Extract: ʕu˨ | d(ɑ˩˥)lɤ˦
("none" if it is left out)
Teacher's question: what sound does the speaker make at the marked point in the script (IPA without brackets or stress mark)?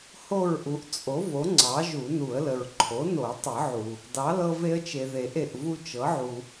ɑ˩˥